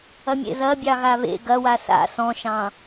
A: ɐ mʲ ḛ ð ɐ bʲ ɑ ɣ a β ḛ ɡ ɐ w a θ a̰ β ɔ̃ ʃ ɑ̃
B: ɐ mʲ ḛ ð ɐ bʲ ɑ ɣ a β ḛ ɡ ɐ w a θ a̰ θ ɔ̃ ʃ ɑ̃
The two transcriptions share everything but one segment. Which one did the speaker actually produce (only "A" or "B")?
B